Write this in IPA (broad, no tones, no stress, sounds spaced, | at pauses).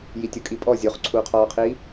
j i tʲ o kʼ i pʼ ɔ zʲ o χ ǀʰ uː qʰ ɔː qʰ iː